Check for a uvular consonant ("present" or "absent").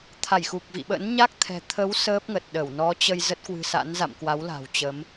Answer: absent